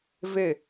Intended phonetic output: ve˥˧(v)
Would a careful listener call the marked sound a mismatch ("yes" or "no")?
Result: yes